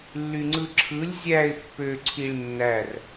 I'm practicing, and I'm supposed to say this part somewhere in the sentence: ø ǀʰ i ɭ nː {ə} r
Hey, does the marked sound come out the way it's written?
no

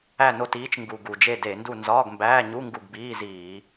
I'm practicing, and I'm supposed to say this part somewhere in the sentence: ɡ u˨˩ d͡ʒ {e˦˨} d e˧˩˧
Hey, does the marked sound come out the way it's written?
yes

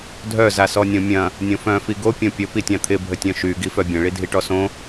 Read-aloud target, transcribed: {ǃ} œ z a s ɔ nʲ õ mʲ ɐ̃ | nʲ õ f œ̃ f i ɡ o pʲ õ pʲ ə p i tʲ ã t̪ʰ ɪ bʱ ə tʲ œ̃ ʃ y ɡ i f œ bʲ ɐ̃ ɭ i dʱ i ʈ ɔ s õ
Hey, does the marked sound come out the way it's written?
no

